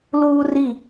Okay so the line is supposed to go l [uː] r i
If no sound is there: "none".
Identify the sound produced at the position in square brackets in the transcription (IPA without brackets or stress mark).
uː